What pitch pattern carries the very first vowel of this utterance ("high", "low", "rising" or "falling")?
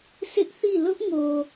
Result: high